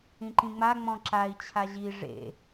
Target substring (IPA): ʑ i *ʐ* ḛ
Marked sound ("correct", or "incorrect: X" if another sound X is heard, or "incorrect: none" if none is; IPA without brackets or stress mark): correct